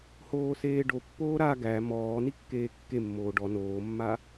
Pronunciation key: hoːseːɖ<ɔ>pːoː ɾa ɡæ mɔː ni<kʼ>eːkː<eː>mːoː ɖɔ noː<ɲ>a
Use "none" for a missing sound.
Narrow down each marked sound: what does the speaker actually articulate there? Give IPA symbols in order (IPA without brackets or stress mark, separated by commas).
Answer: o, kː, e, mː